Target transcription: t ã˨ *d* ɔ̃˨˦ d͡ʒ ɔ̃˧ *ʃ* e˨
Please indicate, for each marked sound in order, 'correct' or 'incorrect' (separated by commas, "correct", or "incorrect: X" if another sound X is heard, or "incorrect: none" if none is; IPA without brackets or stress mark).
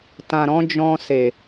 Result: incorrect: ɾ, incorrect: s